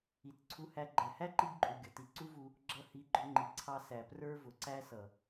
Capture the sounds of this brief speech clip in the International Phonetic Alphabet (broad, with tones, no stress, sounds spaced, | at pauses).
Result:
i˨ t ǀʰ u˧ h æ˧ ɡ͡ǃ æ˨ h æ˦ ǃ i˧ b ǃʼ u˨ ɡʲ ʌ˨ t i˧ ǀ u˦ v u˧ | ɡ͡ǁ ʌ˧ h i˨˦ ɡ͡ǃ ʊ˧ ŋ͡ǃ i˨ ǀʰ ɑ˧ s æ˨ p r ə˞˦ v ʊ˨ ǀ æ˦ s ʌ˨